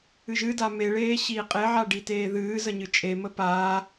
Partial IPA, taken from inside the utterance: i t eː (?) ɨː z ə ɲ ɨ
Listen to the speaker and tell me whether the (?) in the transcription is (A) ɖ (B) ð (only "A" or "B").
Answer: B